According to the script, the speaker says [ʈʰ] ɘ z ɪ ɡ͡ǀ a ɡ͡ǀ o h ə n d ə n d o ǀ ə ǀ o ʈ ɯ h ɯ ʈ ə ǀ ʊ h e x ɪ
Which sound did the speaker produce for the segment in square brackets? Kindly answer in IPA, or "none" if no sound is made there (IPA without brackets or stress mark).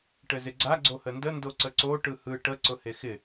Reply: ʈ